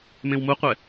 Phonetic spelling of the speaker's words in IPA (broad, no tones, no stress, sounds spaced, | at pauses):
m ẽ w m u qʷ ɛ